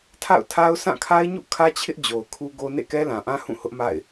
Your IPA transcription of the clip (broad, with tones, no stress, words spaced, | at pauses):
tʰa̰˦˨ʊ̯tʰa˦ʊ̯ sʰã˦˨kʰa˦ɪ̯ɲṵ˦˨ kʰä˦t͡ɕʰɪ˦ʔ d͡ʑo˨ʊ̯kʰu˦ɡo˦ nḛ˦˨kɛ˦lã˨ʔã˦ hũ˦˨hʊ˦ʔma̰˦˨ɪ̯